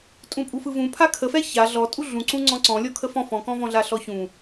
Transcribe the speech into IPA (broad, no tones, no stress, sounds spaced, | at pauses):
tʼ ũ pʼ u f ɯ v ũ pʰ a kʰ ə f ɛ ç a ɮ ɔ tʼ u ɮ ũ ǀ ũ ŋ͡ǀ ɔ̃ ǀ ɔ̃ lʲ ɔ kʰ ə f ɔ̃ f ɔ̃ k ɔ̃ v ɔ̃ ɮ a ɬ ɔ ç ũ